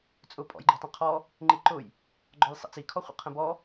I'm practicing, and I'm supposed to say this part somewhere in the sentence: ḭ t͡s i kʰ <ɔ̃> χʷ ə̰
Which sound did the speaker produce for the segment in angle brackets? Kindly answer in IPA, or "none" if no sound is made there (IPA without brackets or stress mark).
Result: ɔ